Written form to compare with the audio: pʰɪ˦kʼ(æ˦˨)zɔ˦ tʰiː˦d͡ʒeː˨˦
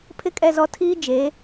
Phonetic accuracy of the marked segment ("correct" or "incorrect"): incorrect